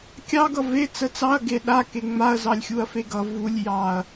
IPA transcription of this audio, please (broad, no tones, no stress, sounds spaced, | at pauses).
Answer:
kʲ ɑ ɡ ʌ v e t͡s ə t͡s ɑ ɐ̯ ɡ e ɗ a k e ŋ͡m a ɐ̯ z ɑ lʲ xʲ u ɐ̯ f e ɡ ʌ v u lʲ j ɑ ɐ̯